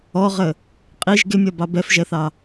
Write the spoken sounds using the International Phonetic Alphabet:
ɔʁə | qʼiʒ ɡɪmʲɒbɑ bɛfʒɛθɑ

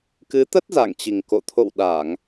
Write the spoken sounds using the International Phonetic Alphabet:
kɨ˨˦t̪ə˦˥t̚ za̰˧˨ŋt͡ɕi˨˩ŋko̰˧˨ t̪ʰo̰˧˨w ɗa˧˩˨ŋ

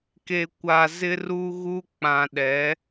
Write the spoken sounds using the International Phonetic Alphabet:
ke˨kʷa˨zɪ˦ ru˦ɣu˦ k͡pã˨ɗɛ˨˦

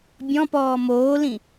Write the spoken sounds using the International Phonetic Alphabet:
bʲɔ̃pɔː moːlĩ

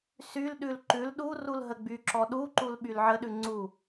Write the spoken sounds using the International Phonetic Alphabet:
sylɗʉl ǃʉl ɗu rulɦəɡ͡byǁɔ ɗuǃul ɓylʕəɗʉ ŋ͡ǀu

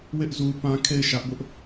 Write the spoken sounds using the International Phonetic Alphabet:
wɪ˦ʔ zu˦pã˦ kʰe˦˨ɪ̯ʃä˦ʔbʊ˦ʔ

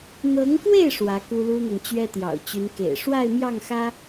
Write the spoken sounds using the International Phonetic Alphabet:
n̪ɤ˧˥ŋkwe˥˩ɪ̯ ʂwä˧˥ku˥lu˥n̪ɤ˨ŋ t͡ɕɥɛ˥t̪jɑ̰˨˩ʊ̯t͡ɕy˧˥nkḛ˨˩ɪ̯ ʂwa˥˧ɪ̯mjɑ˥˩ŋxä˥

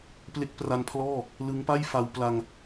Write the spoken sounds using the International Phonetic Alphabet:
ple˦˥k̚pra˧npʰlɔː˥˩ | lɯ˦˥ŋpa˥˩jfa˧w pla˧ŋ

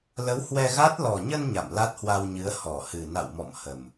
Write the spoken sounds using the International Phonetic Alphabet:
lə˨˦whwɛ˧ɣa˦˥t̚ lɔ˨˩ɲə˧n ɲa̰˧˨mla˦˥t̚hwa˧wɲɨ˨˦ə̯ hɔ˧˩hɨ˨˩ na̰˧˨w mɔ̰˧˨m hə˨˩m

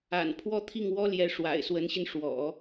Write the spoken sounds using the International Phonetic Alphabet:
a̰˨˩n pʰwɔ˥˧t̪ʰi˥˩ŋ wɔ˥ljɛ˧˥ ʂwa̰˨˩ɪ̯swə˧˥nɕi˧n ʂwɔ̰˨˩˦

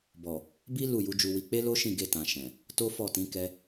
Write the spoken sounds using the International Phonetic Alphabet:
bɔ˨ | bi˦ lu˦˨ju˨˦d͡ʒu˧wi˧ k͡pe˦lo˦ʃĩ˦˨ ɡe˧tã˨ ʃɛ̃˨ | to˦fɔ˦˨tĩ˨˦ kɛ˦

